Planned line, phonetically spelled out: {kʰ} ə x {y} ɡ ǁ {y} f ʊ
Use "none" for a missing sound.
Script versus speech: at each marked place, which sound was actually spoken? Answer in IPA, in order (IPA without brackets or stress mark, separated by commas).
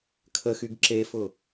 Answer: kʰ, y, e